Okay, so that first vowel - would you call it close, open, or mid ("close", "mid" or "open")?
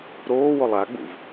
mid